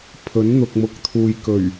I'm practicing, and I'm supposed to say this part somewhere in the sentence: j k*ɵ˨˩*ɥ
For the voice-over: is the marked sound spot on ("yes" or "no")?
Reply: yes